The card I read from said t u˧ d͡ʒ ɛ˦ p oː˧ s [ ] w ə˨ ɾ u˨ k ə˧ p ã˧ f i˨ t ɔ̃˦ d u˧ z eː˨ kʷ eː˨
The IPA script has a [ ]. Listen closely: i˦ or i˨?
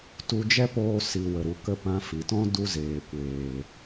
i˨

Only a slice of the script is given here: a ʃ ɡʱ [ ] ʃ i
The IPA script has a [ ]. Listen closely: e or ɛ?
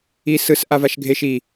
e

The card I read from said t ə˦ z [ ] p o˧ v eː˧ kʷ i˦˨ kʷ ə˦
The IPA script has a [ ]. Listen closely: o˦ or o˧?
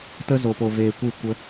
o˧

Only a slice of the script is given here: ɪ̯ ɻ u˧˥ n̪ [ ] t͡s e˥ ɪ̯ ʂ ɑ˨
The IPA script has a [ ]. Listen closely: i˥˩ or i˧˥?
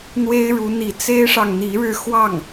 i˧˥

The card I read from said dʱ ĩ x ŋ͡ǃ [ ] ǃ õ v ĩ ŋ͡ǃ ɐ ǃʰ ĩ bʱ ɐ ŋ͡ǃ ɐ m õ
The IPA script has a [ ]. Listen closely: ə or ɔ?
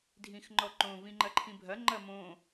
ɔ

